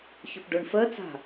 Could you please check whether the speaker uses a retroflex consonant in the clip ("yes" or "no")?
yes